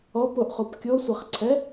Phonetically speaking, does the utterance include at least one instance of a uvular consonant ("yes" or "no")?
yes